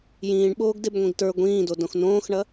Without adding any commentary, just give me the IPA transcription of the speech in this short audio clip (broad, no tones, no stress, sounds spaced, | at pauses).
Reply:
j ĩː ɳ ɓ oː ɡ d e b ŋʷ ĩ ɡ t ə˞ ɡʷ ĩː d o d õ x n õː x ɳ ɐ